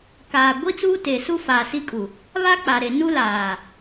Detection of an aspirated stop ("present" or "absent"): absent